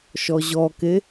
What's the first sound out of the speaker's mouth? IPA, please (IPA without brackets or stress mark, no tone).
ʃ